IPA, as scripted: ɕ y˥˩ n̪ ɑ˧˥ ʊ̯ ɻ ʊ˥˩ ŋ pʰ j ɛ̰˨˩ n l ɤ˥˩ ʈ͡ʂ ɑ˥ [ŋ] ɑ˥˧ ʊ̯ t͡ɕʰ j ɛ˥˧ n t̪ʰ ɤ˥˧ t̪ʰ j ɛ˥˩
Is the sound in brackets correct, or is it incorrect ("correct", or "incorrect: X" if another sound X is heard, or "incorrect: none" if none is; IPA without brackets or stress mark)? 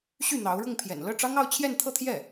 correct